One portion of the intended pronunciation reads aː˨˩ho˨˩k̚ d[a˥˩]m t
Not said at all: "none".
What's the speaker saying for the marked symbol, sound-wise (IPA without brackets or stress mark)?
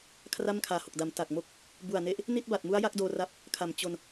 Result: a˩˦